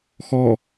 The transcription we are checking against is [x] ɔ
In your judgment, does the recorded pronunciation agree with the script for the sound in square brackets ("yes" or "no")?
yes